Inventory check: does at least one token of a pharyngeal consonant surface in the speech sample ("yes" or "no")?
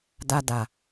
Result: no